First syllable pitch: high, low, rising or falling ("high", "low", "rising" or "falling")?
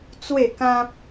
falling